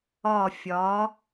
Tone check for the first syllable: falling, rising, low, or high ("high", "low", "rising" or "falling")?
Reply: falling